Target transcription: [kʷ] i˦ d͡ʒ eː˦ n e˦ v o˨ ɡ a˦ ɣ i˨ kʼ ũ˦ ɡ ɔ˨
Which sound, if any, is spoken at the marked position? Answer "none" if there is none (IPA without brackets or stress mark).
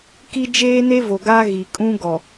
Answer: k